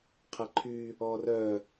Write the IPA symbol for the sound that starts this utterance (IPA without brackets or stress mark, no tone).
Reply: qʰ